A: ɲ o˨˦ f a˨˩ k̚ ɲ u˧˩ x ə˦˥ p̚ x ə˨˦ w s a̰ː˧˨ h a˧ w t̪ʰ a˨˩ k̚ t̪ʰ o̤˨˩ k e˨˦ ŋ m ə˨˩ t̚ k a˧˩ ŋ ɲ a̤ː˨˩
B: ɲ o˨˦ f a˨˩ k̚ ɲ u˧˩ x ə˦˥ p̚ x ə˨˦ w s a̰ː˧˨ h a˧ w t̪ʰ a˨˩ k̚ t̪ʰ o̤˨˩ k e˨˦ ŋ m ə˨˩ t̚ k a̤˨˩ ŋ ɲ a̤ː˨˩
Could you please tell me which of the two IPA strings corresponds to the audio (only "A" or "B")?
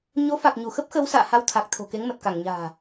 A